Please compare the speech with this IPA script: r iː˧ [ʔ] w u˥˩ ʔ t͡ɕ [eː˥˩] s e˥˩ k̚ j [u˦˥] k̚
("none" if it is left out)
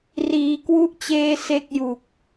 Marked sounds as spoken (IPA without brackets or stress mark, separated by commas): k, eː˥˩, u˨˩